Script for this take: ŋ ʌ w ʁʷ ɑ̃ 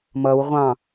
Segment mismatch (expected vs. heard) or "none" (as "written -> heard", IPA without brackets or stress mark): ŋ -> m